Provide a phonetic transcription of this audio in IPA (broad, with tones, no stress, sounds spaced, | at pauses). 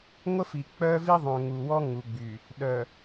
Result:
ŋʷ ə˦ f i˨ k͡p œ˦ v i˦ ðˤ œ̃˨ ŋ u˨ w ɔ˦ ŋ u˨ ɡ͡b y˨ | ɗ œ˨